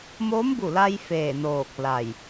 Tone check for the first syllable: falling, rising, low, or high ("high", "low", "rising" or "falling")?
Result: rising